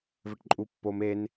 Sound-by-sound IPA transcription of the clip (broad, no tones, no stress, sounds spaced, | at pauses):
v ɘ ʈ ǃʼ u pː o m e n